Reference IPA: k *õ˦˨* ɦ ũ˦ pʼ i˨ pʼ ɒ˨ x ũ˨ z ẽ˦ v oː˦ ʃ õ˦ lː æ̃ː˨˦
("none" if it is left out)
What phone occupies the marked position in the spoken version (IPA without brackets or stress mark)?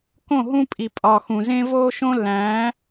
õ˦˨